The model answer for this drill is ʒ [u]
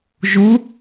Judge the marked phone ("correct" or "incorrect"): correct